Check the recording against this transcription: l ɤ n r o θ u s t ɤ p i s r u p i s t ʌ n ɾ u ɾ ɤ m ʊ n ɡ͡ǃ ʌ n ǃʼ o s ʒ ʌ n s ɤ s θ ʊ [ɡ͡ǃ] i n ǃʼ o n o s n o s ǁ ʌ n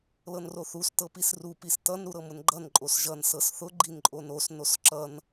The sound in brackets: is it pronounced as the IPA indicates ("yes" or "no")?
yes